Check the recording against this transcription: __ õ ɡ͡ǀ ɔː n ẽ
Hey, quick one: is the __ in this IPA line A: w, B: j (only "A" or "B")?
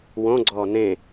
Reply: A